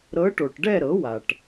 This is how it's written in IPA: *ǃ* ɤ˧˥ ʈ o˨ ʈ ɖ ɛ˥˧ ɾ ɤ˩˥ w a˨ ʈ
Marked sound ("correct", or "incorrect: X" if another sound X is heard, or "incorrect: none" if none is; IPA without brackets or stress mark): incorrect: ɾ